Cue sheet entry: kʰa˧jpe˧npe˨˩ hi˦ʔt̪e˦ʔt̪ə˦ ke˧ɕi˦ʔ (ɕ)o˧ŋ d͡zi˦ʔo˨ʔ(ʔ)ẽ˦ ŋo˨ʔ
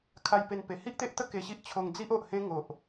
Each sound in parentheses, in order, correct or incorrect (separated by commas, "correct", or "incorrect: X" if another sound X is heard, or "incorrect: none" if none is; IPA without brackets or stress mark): incorrect: t͡ɕʰ, incorrect: h